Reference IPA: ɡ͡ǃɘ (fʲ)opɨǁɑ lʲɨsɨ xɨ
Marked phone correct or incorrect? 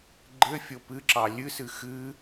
correct